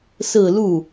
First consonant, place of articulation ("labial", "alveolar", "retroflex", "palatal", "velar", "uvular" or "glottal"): alveolar